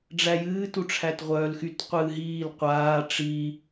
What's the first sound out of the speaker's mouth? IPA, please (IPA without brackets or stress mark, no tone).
ɖ͡ʐ